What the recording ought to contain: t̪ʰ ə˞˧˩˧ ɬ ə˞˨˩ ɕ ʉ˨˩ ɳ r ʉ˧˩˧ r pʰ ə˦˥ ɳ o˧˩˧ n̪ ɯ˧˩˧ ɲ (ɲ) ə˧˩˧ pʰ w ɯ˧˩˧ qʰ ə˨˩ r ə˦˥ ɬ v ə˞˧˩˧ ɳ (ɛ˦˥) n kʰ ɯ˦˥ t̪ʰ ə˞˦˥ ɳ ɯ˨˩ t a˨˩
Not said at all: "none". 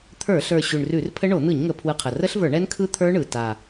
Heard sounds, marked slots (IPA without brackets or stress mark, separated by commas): ŋ, ɛ˦˥